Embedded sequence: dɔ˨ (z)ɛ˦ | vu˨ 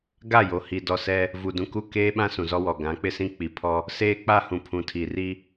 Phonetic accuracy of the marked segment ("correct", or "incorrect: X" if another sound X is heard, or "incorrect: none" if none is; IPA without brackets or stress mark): incorrect: s